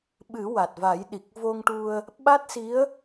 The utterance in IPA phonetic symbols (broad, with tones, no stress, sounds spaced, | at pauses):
ɓ ɨ˨˩˦ w a˨˩ t̚ v a˨˩˦ j ɗ i˨˩ k̚ v o˧ ŋ ʈ u˧ ə̯ | ɓ a˦˥ t̚ s i˧˥ ə̯